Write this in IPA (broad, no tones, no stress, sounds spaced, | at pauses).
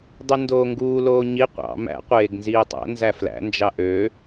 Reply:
dˤ y n d oː ŋ ɡ uː l oː ɲ i qʷ ɑ̰ m æ̰ qʷ eː ɡ n z iː tˤ æ̰ n z æ f l æ̰ n d͡ʒ ɑ ʔ ø